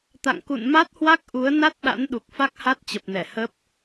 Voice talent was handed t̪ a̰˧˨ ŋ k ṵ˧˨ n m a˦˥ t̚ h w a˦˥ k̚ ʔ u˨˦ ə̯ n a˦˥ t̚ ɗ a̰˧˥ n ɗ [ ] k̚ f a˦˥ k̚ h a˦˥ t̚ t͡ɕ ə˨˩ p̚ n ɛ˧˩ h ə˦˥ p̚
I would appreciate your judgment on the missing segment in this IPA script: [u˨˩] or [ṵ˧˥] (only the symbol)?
u˨˩